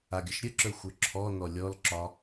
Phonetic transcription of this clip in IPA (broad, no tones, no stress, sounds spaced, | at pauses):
a ɡʲ ə ʃ ɾʲ ə ǁ ə˞ xʷ ə˞ ǁʰ ɔ n ɔ lʲ ɔ l ǁ ɒ